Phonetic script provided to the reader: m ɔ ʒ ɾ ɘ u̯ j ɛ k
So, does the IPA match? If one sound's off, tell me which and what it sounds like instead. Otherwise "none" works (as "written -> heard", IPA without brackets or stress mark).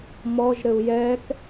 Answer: none